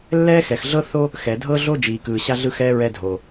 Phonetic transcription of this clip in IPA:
lːɛː˥xɛ˩xɮɤ˥ θo˥ | xɛ˩dʱɤ˥ɮo˥ d͡ʒiː˩kɯː˩ ɕa˥ɮɯ˥xɛː˥ ɹɛ˥dʱoː˩

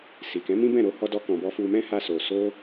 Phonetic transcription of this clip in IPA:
si˨kɛ̃˨˦ mĩ˦bɛ̃˦˨ɾo˧ hɔ˦dɔ˦kɔ̃˧bɔ˦ fu˧mɛ̃˦ ha˦so˧ so˦

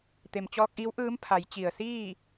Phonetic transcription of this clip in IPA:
t̪e˩mt͡ɕɔː˧k̚ʔiː˧˥wʔɯː˧˥m pʰa˩˧jt͡ɕi˩ə̯siː˥˨

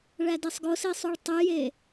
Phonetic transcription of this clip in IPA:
ɭædesˤɡosi sˤuɭtˤyje

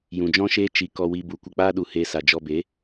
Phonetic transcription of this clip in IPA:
jũ˨d͡ʒɔ̃˦ʃeː˦ t͡ʃi˧ kɔ˧wi˧ bu˨kʷə˧ k͡paː˦ɗu˨ heː˧sa˨ d͡ʒɔ˧be˨˦

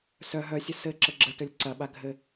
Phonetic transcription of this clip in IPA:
sœ ɦœsʲə sɘ ǁəɡ͡ǁətɵlʲ ǀɐɓa ɡʱɘ

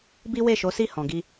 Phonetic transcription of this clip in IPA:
bi˦we˦˨ʃo˨˦si˦˨ hɔ̃˨ɡi˧

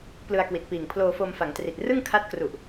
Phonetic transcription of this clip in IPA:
plɯ˧a̯kwi˨˩t̚piː˨˩ŋ pʰloː˧fo˧mfa˩˦ŋtri˨˩t̚ rɯ˥˩ŋkʰa˦˥t̚kru˨˩ʔ

